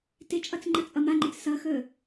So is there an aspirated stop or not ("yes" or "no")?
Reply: no